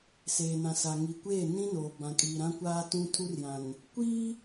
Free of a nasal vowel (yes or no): no